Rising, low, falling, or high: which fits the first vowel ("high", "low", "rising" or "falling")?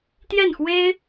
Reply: falling